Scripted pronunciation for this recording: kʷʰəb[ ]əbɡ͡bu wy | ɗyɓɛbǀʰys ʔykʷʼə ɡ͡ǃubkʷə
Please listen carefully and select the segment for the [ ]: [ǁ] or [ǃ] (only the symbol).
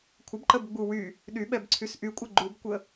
ǃ